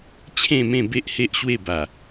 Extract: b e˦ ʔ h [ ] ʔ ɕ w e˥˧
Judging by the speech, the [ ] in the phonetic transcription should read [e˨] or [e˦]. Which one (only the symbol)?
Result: e˦